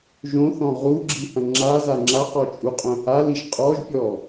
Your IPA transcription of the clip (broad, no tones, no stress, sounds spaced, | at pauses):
ʒ õ θ ɔ̃ ʁ u ɡ͡ǁ i h ɐ̃ ŋ͡ǁ a z a ŋ͡ǁ a q ɔ t͡ʃʼ u qʼ œ̃ h a l i ʒ qʼ ɔ ʒ pʲ ɔ